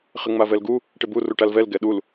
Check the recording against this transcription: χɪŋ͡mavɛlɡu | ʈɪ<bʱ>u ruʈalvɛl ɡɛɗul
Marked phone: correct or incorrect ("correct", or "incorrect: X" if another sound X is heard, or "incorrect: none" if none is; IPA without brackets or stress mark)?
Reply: incorrect: b